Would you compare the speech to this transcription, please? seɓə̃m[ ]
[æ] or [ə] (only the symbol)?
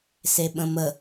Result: ə